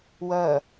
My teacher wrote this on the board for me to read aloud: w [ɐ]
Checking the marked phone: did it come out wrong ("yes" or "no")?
no